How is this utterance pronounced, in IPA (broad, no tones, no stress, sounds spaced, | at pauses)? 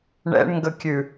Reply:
ɳ ɛ̰ ɳ ŋ ɡ ə kʲ ʉ